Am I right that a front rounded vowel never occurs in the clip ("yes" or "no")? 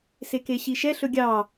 yes